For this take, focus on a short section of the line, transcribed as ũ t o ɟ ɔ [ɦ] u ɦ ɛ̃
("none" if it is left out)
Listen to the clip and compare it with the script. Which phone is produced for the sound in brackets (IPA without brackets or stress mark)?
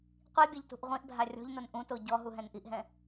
ɦ